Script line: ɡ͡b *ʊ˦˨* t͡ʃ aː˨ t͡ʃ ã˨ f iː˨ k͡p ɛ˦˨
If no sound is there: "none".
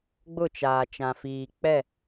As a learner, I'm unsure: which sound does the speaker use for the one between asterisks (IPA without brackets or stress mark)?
ʊ˦˨